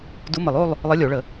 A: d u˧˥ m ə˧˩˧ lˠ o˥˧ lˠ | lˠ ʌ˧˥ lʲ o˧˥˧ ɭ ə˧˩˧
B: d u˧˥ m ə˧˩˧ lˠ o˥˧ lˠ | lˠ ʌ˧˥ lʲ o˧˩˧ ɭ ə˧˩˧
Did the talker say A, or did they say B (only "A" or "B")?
B